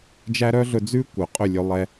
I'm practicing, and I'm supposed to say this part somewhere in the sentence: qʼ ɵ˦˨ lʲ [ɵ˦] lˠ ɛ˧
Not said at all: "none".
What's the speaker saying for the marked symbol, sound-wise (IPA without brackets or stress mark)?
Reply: ɵ˧